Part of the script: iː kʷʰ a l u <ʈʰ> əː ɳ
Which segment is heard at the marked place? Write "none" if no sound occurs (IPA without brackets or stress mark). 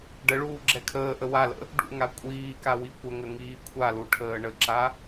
ʈʰ